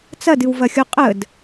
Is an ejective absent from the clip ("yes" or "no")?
no